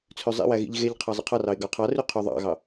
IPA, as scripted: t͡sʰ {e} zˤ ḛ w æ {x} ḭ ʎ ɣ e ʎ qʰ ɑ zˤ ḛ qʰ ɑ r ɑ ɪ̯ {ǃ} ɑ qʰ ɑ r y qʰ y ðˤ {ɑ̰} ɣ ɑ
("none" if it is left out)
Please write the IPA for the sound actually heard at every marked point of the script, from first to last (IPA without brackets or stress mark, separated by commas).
ø, ɣ, ɡ, ɑ̰